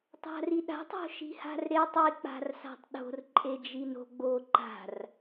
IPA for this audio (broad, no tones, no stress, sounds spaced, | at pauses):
tˤ a̤ r i ɗ a̤ tˤ o̤ ʃ i̤ h a̤ r ɾ e tˤ i k͡p a̤ r s a̤ tˤ ɗ o̤ r ǃʼ e d͡ʒ i n o̤ ɡ͡b o ǃ a̤ r